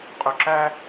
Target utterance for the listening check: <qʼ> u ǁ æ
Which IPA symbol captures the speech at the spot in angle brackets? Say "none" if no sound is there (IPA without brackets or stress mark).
qʼ